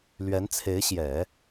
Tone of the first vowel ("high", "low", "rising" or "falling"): rising